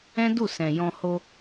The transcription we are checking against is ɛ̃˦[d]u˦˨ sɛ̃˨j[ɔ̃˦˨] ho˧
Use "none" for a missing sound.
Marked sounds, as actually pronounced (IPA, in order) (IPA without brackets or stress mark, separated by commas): d, ɔ̃˧